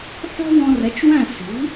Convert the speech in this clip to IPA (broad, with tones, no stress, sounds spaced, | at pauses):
ħ ɔ̤˥ w ɔ̃˧ r ɛ˩˥ t͡ʃ w æ̃˥˩ s i̤˩˥